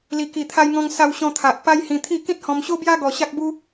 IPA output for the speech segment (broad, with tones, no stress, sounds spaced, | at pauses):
l i˨˩ k i˨˩ t̪ʰ a˧ j ŋ ɔ̃˧ ŋ s a˧ w ɕ ɔ̃˧ t̪ʰ a˨ ʔ p a˧ j h ĩ˧ t̪ʰ i˥˧ k ĩ˦ t̚ h ɔ̃˧ m ɕ o˦ b j a˦ ɡ ɔ˧ ɕ a˦ k̚ b u˦